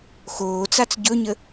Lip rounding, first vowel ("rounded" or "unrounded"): rounded